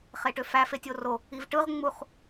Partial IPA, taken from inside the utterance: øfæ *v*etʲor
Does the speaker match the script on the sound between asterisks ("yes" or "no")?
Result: no